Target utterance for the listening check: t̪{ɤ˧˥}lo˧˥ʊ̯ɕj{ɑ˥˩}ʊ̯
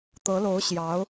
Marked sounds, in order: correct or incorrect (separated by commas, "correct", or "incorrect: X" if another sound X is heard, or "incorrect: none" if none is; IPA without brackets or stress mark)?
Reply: correct, incorrect: ɑ˧˥